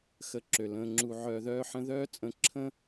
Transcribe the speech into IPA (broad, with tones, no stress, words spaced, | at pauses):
xə˧ǁø˩lə̃ː˧ŋ͡ǁu˧ ʕœː˧ðœː˥ħə̃˥ ðœː˥t͡sʼə̃˧ǁʰə̃ː˥